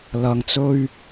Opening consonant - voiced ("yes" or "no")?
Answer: yes